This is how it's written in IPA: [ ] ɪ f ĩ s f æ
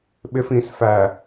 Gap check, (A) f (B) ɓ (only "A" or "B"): B